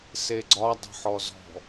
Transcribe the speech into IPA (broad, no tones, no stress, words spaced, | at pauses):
seɡ͡ǀɒ dˤə̤ħɔzɔ̤